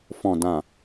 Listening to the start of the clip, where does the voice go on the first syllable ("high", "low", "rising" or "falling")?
low